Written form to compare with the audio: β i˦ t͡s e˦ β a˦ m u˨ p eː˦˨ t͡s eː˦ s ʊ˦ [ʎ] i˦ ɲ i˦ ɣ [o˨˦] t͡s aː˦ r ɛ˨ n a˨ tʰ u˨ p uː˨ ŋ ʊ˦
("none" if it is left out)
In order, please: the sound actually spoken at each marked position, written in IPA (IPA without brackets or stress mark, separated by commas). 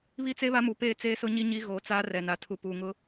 ɲ, o˨˦